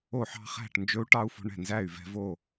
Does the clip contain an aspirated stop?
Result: no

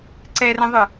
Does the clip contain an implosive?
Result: no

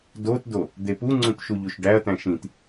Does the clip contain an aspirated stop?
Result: no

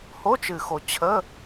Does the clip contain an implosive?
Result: no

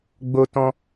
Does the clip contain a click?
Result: no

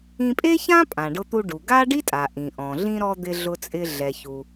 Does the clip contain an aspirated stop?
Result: no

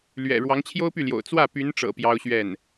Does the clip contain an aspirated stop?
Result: yes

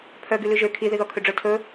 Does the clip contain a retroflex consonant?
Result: yes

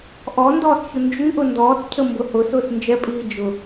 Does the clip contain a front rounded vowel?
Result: yes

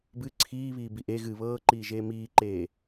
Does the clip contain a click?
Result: yes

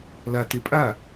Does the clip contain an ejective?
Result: yes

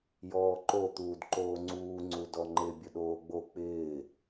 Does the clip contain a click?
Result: yes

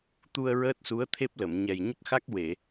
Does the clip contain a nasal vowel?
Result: no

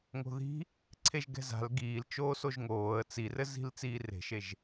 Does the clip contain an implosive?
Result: no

